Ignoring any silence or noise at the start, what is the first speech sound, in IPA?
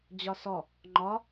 d͡ʑ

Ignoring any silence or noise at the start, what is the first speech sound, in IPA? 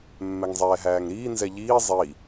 mː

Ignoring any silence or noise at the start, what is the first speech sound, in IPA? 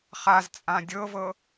χ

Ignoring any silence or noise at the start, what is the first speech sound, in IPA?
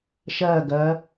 ʃ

